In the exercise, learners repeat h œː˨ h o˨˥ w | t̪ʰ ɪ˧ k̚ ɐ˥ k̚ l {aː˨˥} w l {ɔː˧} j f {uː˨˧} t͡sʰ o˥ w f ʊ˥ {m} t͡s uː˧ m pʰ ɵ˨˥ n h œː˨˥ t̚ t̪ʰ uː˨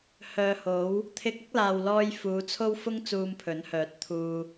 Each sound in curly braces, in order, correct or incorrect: incorrect: aː˨, correct, correct, incorrect: ŋ

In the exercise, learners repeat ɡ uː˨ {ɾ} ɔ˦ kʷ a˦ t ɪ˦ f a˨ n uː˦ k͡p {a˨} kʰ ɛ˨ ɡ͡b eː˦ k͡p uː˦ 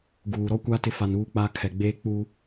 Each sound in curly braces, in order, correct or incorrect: correct, incorrect: a˦

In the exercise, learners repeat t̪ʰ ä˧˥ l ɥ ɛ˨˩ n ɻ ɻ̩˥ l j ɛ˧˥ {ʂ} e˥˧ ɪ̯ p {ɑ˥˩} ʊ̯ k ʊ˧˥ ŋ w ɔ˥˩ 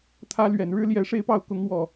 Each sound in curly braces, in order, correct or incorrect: correct, correct

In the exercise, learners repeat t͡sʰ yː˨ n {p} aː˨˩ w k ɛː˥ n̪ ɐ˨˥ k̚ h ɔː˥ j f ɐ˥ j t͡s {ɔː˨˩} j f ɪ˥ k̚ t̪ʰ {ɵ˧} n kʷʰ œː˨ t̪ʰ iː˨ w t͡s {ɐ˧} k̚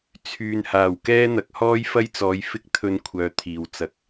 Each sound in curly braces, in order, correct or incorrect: incorrect: h, incorrect: ɔː˨˧, correct, correct

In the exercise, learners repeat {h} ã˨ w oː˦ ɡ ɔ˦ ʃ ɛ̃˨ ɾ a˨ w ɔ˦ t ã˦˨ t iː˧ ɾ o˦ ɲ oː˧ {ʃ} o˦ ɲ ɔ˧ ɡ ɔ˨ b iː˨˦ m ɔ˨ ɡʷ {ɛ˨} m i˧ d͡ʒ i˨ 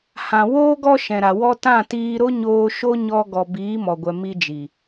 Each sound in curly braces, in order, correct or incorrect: correct, correct, correct

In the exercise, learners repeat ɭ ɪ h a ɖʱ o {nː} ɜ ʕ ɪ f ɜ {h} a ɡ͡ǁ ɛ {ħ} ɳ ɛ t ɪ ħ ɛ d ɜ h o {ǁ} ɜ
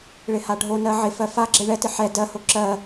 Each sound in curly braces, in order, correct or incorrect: incorrect: n, incorrect: f, incorrect: none, correct

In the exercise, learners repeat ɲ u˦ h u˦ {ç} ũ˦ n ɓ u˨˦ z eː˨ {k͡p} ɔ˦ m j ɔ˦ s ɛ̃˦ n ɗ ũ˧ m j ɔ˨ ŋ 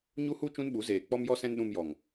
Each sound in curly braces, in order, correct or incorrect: incorrect: t͡ʃ, correct

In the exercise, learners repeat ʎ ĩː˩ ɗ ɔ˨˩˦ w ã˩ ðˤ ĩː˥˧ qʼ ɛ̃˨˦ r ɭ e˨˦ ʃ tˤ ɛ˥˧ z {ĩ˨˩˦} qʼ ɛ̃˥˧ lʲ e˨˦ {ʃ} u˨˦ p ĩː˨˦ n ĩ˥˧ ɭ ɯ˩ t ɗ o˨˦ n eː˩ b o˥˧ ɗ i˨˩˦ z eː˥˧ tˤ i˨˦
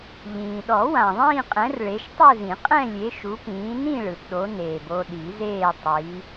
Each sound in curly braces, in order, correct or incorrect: correct, correct

